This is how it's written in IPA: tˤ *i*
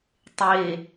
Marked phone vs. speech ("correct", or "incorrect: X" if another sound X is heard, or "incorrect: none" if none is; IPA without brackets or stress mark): incorrect: e